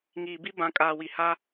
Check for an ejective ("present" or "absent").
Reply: present